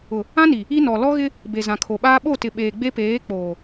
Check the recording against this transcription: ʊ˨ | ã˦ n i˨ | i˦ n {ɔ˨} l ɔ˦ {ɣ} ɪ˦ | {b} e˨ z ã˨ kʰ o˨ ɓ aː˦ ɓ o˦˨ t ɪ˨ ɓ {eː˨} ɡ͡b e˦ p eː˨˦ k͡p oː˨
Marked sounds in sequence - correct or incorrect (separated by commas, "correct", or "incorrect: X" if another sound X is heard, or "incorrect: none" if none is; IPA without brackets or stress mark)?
correct, correct, correct, correct